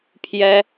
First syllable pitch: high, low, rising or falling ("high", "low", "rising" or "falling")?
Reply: high